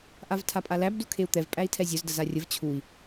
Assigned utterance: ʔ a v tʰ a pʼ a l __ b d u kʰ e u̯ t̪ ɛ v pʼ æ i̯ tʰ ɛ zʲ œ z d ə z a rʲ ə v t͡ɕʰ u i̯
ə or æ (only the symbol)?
æ